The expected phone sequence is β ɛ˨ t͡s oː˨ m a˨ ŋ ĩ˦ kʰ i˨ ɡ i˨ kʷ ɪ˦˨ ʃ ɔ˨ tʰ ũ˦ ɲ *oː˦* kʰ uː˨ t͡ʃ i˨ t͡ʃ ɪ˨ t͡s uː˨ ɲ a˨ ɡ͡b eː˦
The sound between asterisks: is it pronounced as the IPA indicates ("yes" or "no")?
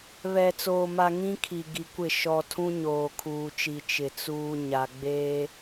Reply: no